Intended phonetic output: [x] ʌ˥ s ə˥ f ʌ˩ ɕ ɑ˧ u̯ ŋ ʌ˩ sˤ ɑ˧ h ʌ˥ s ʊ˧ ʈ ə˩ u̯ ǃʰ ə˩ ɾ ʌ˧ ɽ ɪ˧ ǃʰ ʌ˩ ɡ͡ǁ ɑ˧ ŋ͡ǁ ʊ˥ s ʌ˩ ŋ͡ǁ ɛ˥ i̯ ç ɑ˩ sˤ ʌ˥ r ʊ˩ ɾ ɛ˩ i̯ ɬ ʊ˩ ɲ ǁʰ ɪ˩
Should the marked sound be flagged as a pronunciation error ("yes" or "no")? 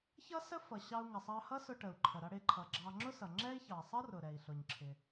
yes